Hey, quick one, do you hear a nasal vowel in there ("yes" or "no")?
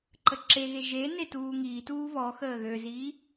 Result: no